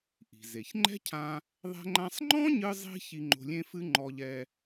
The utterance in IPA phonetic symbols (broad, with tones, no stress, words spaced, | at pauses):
ʔi̤˩ze˩çŋ͡ǃɛ̤˥cʰã˧ | ðˤɛ̤˥ŋ͡ǃã˥sˤ ŋ͡ǃɔ̃˥ɲɨ˧zˤi̤˧ çi˧ŋ͡ǃo̤˧lʲẽ˥fɨ˥ ŋ͡ǃɔ˧ʎɛ˧